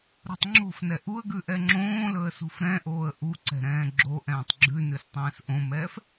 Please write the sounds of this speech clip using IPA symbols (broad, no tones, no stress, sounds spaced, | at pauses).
ɾ o̤ tˤ ŋ͡ǁ o̤ f n ɛ ʔ u ə̯ ɡ ʉ ʔ ɛ ŋ͡ǁ õː l ɵ ə̯ s ṳ f ɾ ɛ̃ ʔ oː ə̯ ʔ u ǀ ɛ̤ ɾ ɛ̃ː ɡ͡ǁ o ʔ ɛ̃ː tˤ ɡ͡ǁ ʉ n ʉ s tˤ ɛ̃ː s ʔ õ m ɛː f